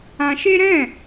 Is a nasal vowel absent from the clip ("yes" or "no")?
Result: no